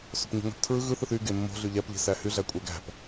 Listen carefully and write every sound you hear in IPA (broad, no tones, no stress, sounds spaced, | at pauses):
s o̤ p ɲ o̤ ŋ æ̤ p tʰ ɹ ɯ ɣ ɯ θ ɯ θ y ɡ e mː o̤ ɮ y ʎ æ p ʎ e̤ s æ h y ɮ æ kʷʼ æ ɡ æ̤ p